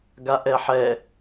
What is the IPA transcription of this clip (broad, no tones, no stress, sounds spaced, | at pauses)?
ɡ a ʔ ɛ ħ ɛ